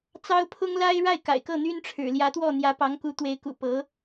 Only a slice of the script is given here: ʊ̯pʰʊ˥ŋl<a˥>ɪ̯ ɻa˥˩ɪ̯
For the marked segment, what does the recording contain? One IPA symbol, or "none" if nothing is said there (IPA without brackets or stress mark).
a˥